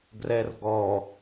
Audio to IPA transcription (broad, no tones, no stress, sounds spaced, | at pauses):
ɡ r ɛ r ɡ ɔ